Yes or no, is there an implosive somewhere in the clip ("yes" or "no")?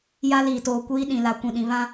yes